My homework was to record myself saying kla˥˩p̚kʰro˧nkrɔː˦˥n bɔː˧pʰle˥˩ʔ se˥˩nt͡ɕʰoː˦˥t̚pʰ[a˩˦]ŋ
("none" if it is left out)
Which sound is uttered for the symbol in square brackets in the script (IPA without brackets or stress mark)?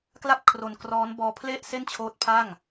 a˥˩